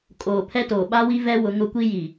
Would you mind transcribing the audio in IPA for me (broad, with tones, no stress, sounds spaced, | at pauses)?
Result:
kʼ oː˨ pʰ ɛ˦ t oː˨ ɓ a˦ w i˦ v ɛ˦ w ʊ˨˦ ŋ ʊ˦ kʷ i˦ j i˨